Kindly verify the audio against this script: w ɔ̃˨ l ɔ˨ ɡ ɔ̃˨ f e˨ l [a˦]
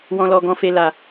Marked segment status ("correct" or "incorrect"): incorrect